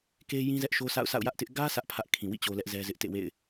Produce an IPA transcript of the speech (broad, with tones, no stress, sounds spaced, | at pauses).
k e˦ j ĩ˦ z ɛ˦ ʔ ʃ o˦ sʰ a̰˦˨ ʊ̯ sʰ a̰˦˨ ʊ̯ j ä˦ ʔ t ɪ˦ ʔ ɡ ä˦ sʰ ä˦ ʔ pʰ ä˦ ʔ kʰ ĩ˨ w ḭ˦˨ t͡ɕ o˦ l ɛ˦ ʔ z ɛ˦ z ɪ˦ ʔ t ḛ˦˨ w ḛ˦˨ ɪ̯